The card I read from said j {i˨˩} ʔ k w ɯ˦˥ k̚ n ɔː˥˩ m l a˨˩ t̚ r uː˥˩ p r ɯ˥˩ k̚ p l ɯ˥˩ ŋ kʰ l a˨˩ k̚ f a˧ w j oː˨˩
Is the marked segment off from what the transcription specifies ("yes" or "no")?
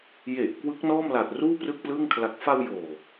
yes